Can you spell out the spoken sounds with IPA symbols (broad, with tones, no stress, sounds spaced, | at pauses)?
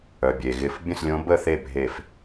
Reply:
œ˩ bʲ e˩ ɣ ɪ˧˩ f bʲ ə̃˥˩ s lʲ õ˨˦ b ə˥˩ θ e˥˩ bʱ e˧˩ f